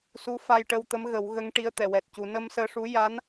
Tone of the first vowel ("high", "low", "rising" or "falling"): rising